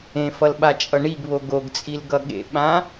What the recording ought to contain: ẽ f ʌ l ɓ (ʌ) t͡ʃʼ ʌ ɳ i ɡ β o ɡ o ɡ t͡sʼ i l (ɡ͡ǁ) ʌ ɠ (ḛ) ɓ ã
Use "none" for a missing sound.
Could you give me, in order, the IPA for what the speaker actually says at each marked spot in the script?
a, ɡ, ḛ

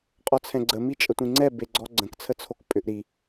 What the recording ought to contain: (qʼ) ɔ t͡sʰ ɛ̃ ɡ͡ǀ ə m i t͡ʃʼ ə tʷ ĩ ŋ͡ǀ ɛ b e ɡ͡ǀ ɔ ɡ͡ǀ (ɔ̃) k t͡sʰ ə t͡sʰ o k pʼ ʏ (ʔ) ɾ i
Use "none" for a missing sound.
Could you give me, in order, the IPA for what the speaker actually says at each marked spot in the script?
qʼ, ə̃, ʔ

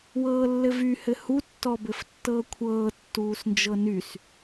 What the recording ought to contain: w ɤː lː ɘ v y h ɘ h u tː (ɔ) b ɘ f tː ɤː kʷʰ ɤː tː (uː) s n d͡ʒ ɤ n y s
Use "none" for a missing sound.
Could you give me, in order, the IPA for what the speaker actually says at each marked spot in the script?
ɔ, uː

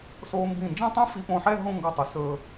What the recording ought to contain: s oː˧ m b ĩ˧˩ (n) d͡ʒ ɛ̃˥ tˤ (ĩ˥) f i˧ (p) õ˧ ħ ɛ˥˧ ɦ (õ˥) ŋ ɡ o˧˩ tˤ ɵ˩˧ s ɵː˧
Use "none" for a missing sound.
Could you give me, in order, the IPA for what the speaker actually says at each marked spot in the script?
n, ĩ˥, p, õ˥˧

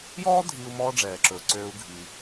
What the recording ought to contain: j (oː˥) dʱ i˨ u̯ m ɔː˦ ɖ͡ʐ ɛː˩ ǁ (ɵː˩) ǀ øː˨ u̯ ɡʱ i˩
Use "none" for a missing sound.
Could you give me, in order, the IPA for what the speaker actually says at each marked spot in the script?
ɔː˥, ɵː˩

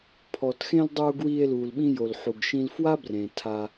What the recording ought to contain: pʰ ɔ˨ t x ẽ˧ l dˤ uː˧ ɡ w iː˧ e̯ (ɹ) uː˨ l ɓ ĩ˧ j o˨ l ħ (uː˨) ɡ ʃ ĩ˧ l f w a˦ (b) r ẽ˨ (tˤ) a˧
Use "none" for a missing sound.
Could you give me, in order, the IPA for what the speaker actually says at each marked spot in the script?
l, u˨, b, tʰ

